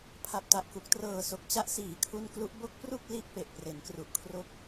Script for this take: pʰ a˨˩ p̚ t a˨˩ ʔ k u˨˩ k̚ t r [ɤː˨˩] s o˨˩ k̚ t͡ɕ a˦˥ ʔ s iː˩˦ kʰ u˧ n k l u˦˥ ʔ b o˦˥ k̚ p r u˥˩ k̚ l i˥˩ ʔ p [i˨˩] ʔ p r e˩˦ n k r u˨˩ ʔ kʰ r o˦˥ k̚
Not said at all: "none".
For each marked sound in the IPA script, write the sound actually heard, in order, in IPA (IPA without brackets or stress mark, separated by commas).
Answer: ɤː˨˩, e˨˩